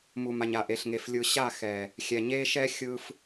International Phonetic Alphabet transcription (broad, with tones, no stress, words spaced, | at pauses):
mu˨ma˨ɲa˨ ʔe˨ɬŋe˨f lʲɯ˨ɕa˦˨ xɛ˨ | xʲɛ˨ɲe˦ʃɛ˦ xʲɯ˦f